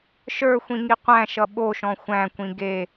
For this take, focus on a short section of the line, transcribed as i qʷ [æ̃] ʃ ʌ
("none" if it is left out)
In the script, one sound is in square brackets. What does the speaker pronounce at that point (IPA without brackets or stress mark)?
æ̃